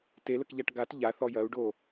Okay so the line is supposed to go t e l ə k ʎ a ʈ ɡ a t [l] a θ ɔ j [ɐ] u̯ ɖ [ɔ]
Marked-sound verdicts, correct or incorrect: incorrect: ʎ, correct, incorrect: o

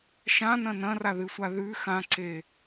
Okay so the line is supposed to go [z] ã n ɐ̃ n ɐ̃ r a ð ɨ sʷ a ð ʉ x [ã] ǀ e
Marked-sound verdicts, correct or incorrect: incorrect: ʃ, correct

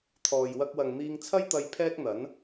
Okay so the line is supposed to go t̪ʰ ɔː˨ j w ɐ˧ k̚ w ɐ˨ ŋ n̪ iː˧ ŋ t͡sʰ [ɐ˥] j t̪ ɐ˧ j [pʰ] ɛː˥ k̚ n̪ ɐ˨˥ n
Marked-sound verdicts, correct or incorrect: correct, correct

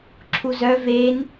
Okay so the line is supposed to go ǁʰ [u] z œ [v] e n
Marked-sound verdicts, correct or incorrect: correct, correct

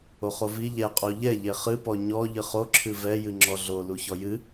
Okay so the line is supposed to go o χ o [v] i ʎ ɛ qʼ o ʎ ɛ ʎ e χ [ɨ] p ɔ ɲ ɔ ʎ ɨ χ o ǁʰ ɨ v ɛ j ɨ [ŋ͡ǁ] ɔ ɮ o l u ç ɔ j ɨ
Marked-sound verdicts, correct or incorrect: correct, correct, correct

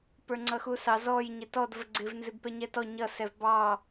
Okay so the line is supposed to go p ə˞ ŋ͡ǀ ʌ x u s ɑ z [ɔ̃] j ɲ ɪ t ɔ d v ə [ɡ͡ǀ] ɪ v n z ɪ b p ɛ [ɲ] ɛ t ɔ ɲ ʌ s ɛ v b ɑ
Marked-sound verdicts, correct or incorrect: incorrect: ɔ, correct, correct

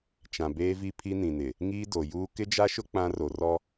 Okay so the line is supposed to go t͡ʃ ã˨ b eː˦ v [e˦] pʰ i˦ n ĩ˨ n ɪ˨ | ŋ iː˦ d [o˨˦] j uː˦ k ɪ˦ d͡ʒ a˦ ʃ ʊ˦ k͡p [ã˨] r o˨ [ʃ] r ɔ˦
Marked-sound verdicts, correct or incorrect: incorrect: i˦, incorrect: o˨, incorrect: ã˦, incorrect: none

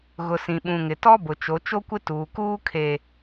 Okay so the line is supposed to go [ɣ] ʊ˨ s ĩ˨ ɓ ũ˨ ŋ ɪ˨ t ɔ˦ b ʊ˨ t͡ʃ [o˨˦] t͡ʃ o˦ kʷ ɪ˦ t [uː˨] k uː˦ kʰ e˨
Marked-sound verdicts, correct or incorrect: correct, correct, correct

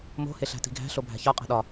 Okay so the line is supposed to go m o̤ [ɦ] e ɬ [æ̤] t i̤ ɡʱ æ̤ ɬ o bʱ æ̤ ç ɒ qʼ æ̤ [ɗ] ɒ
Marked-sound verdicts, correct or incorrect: incorrect: h, correct, correct

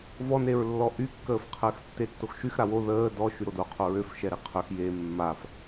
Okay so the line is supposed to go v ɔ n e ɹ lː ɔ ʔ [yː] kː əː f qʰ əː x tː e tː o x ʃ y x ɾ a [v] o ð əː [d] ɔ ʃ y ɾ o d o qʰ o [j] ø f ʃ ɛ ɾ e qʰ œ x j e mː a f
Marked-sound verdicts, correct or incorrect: incorrect: y, incorrect: w, correct, incorrect: ɹ

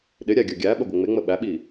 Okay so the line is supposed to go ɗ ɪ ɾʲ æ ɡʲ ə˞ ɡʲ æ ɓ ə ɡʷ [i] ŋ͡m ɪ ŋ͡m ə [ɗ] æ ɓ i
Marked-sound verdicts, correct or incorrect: incorrect: ɪ, incorrect: ɓ

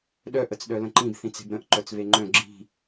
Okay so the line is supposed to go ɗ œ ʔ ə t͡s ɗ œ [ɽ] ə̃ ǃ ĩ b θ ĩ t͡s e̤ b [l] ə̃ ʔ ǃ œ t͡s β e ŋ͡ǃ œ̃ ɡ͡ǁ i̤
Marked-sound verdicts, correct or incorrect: incorrect: l, incorrect: ɾ

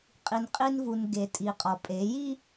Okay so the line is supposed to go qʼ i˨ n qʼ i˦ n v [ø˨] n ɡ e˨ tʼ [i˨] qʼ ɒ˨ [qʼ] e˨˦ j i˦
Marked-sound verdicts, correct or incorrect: incorrect: u˨, correct, incorrect: pʼ

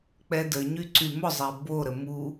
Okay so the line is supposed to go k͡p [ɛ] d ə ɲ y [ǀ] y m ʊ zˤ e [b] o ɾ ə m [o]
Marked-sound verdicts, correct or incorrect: correct, correct, correct, incorrect: u

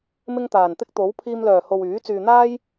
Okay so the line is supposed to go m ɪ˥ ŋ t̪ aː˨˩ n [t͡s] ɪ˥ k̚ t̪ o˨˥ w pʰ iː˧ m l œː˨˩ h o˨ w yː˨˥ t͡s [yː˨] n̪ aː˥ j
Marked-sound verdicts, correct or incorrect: incorrect: t̪, correct

